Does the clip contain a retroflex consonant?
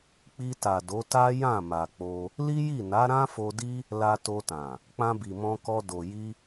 no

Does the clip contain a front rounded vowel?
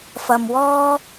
no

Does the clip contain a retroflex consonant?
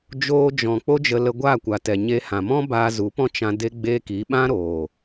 no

